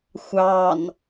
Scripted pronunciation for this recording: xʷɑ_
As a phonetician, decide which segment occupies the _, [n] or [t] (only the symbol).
n